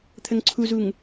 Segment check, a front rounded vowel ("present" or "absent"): absent